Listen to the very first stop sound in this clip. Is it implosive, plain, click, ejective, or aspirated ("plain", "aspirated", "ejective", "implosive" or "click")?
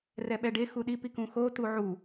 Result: implosive